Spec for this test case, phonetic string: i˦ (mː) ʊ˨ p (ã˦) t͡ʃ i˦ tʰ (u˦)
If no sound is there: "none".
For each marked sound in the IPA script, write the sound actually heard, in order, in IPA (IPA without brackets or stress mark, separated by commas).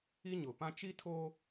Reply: ɲ, ã˦, o˦